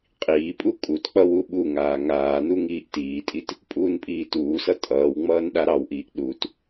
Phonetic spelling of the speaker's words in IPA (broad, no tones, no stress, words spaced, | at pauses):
qʼiːpʼu kʼutk͡pʌ wuɓuŋaː ŋaːnu ŋiːʔtiːtʼit | pʼuːnpʼiːtuːsʌ tʼʌːwŋ͡mʌːn ɗaɾɑwʔiːʔ ɗut